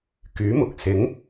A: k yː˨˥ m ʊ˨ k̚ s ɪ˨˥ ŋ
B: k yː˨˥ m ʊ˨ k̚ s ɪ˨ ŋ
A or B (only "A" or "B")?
A